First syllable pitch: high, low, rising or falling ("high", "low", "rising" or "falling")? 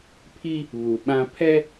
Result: high